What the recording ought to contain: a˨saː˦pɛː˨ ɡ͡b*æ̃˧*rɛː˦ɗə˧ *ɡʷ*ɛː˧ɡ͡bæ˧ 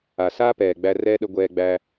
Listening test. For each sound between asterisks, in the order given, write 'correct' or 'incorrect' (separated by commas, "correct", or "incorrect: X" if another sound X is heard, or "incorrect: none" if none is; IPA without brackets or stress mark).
incorrect: æ˧, correct